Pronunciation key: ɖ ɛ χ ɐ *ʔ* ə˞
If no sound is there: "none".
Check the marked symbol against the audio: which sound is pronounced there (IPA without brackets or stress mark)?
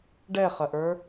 ʔ